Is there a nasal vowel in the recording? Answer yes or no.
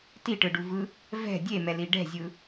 no